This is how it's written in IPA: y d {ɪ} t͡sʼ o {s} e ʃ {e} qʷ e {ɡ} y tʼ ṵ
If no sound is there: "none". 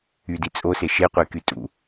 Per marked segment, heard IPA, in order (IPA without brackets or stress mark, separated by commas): i, s, e, k